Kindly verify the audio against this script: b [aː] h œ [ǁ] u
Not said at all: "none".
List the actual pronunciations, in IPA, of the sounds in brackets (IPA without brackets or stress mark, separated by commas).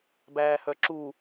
æː, ǁ